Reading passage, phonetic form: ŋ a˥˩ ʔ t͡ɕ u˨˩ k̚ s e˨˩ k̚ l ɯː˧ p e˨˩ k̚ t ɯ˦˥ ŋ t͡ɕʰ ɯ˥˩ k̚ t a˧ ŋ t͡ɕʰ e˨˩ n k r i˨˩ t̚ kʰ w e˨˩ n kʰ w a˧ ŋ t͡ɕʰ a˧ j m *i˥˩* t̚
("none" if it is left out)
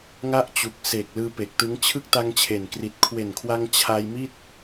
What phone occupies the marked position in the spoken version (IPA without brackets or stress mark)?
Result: i˥˩